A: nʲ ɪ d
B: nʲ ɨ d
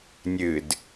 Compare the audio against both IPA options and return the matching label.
B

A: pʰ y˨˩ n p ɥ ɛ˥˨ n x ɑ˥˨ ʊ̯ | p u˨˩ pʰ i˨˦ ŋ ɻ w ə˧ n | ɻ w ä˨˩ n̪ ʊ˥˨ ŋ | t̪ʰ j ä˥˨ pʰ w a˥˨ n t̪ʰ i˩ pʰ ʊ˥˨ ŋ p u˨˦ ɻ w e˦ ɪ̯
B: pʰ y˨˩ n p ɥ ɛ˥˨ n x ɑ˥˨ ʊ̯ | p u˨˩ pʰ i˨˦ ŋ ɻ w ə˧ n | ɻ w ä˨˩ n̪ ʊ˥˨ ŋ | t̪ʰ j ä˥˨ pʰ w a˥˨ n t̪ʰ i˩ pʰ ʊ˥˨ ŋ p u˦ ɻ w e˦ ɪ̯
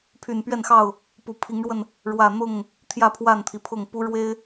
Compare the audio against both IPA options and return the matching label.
B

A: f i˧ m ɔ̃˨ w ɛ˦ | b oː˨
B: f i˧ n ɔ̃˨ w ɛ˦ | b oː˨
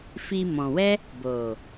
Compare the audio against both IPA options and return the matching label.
A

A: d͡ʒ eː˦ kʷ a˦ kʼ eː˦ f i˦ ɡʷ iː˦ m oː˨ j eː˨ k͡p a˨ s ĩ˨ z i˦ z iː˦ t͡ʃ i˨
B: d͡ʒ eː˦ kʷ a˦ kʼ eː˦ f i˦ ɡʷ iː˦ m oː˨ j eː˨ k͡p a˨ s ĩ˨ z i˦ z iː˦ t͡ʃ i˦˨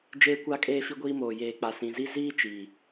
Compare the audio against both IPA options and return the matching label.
A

